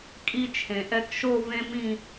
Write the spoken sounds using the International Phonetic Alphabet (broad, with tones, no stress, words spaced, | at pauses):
kʼi˧ t͡ʃʰẽ˩ʔɛ˧kʃo˥˧ vẽ˦˥mĩ˥˧